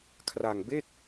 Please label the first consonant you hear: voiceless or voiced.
voiceless